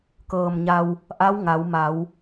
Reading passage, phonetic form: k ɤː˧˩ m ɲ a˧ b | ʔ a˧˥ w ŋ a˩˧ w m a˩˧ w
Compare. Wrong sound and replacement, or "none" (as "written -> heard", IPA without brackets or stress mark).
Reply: b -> w